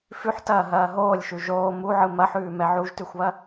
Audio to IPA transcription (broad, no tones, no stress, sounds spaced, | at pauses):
f ʉ ħ t ɐː ɦ ɐː ɦ oː lʲ ʃ ʉ ʒ oː m u ʕ ɯ m ɐ ħ ʉː m ɛ ʕ u ʒ t ʉ xʷ β ɐ